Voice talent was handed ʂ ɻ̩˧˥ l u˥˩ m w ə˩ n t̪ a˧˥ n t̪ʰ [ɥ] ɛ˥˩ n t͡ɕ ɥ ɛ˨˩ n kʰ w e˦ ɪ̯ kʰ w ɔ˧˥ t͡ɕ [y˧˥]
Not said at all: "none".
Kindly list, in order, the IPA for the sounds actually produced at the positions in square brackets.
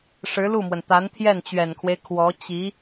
j, i˧˥

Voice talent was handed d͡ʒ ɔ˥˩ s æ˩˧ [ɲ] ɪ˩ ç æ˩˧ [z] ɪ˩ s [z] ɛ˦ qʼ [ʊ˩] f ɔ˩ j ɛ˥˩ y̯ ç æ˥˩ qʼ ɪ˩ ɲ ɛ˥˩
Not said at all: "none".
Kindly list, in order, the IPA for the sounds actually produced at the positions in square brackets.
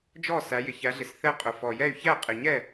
j, ɮ, θ, ʊ˩

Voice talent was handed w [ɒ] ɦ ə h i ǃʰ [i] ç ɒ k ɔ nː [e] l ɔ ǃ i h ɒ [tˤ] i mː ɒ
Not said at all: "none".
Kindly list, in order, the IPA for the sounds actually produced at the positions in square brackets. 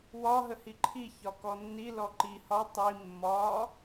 ɒ, i, i, tˤ

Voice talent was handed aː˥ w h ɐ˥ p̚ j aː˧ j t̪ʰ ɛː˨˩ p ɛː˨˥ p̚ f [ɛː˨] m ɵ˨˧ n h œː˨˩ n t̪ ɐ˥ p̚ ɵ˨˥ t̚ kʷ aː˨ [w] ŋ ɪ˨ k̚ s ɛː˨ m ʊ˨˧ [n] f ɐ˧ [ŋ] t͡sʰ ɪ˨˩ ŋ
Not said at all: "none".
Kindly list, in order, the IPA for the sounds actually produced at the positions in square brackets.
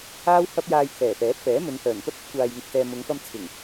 ɛː˨˥, j, ŋ, m

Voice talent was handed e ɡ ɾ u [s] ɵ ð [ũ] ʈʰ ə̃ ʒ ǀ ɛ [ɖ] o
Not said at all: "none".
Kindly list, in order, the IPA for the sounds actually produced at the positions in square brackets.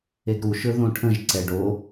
ʃ, õ, ɖ

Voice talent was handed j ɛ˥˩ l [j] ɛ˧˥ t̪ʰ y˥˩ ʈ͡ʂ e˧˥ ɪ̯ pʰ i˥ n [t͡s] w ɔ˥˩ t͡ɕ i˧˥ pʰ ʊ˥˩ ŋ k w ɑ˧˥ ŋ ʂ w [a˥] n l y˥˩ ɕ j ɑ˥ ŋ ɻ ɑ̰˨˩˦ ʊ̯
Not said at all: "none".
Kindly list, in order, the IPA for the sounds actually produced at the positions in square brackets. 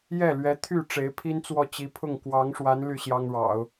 ɥ, t͡s, a˧˥

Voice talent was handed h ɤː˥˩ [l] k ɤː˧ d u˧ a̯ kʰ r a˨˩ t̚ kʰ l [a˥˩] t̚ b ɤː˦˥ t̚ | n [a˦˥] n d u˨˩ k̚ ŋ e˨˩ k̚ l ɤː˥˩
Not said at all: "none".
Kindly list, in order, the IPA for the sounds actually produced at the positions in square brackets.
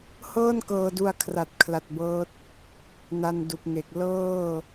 n, a˨˩, a˧

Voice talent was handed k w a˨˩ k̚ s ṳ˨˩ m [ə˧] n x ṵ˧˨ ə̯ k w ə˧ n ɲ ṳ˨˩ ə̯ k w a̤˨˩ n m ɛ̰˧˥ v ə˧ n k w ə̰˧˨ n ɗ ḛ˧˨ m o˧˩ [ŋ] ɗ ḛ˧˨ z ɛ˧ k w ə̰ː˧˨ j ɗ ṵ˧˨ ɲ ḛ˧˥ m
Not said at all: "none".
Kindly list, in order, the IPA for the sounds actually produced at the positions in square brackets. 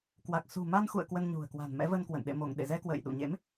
a˧, ŋ

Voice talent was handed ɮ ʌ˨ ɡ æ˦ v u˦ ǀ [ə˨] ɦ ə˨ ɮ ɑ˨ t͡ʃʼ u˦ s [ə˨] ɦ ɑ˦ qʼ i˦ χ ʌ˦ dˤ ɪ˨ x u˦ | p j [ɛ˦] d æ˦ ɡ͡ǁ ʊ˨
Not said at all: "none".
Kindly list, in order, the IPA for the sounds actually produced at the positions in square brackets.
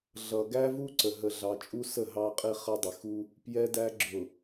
ə˨, ə˦˨, ɛ˦

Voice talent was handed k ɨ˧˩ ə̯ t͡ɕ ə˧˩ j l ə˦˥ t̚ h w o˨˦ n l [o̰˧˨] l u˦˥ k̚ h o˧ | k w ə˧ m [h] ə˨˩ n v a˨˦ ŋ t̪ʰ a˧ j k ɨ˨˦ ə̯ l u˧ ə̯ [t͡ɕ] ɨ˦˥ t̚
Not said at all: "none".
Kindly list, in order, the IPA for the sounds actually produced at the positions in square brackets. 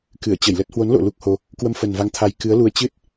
o̰˧˨, f, t͡ɕ

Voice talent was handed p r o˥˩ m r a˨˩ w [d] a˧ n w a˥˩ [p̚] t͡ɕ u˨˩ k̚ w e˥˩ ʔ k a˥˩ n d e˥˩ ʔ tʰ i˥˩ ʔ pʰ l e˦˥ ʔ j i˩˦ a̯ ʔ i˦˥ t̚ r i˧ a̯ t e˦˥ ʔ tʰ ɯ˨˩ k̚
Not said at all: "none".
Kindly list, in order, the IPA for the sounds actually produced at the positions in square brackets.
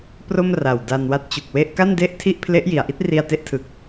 d, t̚

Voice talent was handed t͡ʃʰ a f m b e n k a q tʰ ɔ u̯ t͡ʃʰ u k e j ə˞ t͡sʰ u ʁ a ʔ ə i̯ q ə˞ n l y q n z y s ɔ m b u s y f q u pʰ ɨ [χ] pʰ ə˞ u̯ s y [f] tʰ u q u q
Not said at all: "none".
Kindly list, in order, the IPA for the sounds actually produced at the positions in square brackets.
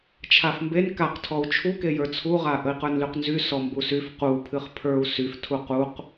χ, f

